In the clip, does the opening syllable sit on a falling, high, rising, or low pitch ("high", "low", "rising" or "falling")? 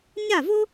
falling